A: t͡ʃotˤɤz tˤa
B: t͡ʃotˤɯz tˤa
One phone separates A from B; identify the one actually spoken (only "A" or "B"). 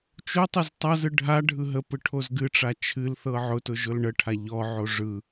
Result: B